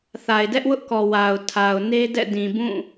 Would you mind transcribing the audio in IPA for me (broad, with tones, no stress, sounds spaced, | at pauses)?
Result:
θ a˨ ɪ̯ d ɛ˦ ʔ w ʊ˦ ʔ k ɔ˨ w a˨ ʊ̯ tʰ a˨ ʊ̯ n e˦ d ɛ̰˦˨ d ĩ˨ b ũ˦˨